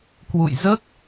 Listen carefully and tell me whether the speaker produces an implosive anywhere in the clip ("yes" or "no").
no